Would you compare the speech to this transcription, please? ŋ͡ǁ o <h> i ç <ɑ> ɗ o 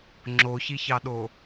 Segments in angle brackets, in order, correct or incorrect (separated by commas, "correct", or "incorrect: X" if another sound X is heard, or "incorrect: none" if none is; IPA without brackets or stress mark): incorrect: ç, correct